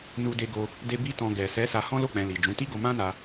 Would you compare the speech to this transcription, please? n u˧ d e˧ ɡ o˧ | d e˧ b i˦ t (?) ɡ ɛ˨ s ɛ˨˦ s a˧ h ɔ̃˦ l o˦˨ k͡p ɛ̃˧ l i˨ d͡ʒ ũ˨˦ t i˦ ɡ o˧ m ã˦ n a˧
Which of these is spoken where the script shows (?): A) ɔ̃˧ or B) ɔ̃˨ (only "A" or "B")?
A